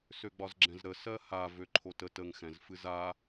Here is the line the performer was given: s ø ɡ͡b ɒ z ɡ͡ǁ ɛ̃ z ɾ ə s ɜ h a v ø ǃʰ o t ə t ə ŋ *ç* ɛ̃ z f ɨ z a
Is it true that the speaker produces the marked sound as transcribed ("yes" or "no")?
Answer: no